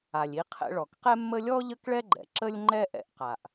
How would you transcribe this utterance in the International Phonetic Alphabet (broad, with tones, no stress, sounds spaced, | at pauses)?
a˩ lʲ i˧ qʰ ɛ̰˧ ɭ ɔ˩ k q ɛ˥ mː ə˥ lʲ ɔ˥ ʎ ə˥ k ɭ ɛ˥ ɡ͡ǃ ɛ̰˩ ǁ ə˥ lʲ ŋ͡ǃ ɛ˥ ʔ ɛ̰˧ ʔ q a˩ ʔ